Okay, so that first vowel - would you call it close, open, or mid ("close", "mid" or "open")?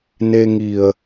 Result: mid